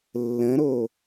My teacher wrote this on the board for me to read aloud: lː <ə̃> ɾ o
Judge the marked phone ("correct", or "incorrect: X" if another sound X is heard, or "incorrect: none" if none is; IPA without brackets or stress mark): correct